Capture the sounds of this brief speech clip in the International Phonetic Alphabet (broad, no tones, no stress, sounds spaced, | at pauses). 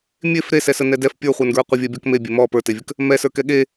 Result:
mʲ e f ɾ e s ɛ s ə n ɛ d ɛ f pʲ ə˞ χʷ ə˞ n ɡ ɹ ə qʷ ə vʲ ɛ bʲ ɔ k m e bʲ e m ɔ p ə˞ t e vʲ ə k | m ɛ s ə˞ k ɛ ɠ e